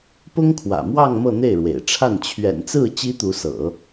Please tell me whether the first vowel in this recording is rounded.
yes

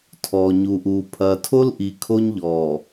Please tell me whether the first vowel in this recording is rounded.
yes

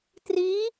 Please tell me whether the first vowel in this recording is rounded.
no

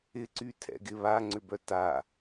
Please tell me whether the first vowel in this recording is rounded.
no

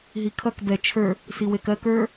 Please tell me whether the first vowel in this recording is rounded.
no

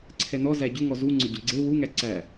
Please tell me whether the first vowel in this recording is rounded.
no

